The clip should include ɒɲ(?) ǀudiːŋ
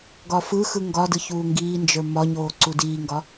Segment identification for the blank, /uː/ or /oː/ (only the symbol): oː